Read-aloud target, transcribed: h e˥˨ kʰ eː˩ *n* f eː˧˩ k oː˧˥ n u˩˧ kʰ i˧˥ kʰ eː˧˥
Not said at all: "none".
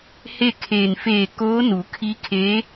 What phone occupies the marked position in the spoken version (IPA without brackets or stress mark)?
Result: n